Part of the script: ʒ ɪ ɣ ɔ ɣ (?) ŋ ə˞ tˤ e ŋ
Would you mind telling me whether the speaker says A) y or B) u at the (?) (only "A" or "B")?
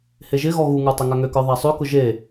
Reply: B